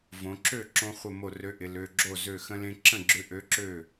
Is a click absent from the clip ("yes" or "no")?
no